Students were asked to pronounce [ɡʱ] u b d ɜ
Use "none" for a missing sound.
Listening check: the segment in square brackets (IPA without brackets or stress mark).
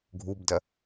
ɡʱ